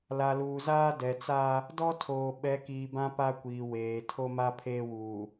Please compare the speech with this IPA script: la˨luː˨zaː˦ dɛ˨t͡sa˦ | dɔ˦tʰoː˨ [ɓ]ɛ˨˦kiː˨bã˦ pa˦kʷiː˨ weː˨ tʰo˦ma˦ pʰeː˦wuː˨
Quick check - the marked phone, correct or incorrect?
correct